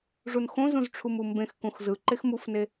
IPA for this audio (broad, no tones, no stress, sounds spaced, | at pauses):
ʐ u n x õ z ũ z ʈ͡ʂʰ u m u m b ẽ x k ũ x z ɯ ǃ e x m u f n e